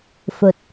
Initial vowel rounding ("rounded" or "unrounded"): rounded